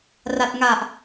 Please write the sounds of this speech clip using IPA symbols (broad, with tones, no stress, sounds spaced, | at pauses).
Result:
r a˨˩ t̚ ŋ a˨˩ ʔ